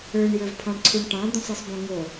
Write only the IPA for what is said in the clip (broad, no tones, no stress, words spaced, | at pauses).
ə˞ɳjə˞v pʰɑ̃ɳǀʰuɳʈɑ̃ d̪õsˤisˤbõŋo